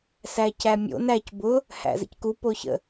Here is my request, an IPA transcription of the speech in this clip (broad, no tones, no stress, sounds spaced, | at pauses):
s æ c æ mʲ o̰ n æ c b ʊ | h æ̰ z ə̰ c k u p o ç ə̰